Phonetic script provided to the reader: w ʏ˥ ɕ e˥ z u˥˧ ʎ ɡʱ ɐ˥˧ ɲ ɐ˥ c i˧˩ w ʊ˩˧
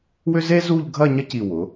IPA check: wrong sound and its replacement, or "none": ɕ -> z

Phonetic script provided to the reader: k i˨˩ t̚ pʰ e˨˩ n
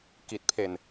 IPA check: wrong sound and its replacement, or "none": none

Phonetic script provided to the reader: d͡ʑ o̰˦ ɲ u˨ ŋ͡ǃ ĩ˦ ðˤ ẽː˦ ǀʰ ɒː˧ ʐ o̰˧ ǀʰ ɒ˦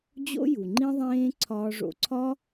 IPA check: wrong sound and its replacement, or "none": ɲ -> j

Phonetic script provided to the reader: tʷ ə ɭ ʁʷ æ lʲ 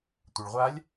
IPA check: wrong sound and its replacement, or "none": æ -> a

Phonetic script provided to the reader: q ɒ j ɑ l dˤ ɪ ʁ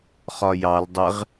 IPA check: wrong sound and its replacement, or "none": q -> χ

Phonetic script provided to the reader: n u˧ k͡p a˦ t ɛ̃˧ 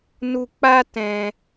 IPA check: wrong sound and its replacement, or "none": none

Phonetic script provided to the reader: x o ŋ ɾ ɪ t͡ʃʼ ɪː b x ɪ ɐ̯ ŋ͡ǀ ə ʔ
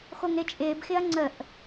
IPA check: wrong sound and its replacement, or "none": none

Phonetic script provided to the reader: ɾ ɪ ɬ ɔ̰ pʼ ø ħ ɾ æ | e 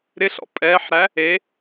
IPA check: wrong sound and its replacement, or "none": ø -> ɛ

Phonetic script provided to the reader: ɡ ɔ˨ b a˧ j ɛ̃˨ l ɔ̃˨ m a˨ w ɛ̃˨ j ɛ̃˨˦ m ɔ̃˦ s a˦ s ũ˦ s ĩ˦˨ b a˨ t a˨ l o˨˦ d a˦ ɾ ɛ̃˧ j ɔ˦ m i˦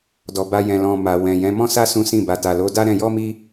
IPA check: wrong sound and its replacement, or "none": ɡ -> d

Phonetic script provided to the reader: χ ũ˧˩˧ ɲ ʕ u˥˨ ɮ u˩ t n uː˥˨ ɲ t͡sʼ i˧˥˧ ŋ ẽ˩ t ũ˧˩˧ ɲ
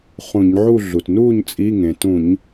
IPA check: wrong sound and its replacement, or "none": none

